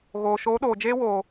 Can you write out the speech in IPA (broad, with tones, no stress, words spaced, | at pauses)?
ɣoː˨ʃoː˨˦ ɗoː˨d͡ʒeː˧woː˨